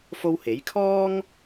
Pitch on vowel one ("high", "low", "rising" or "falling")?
high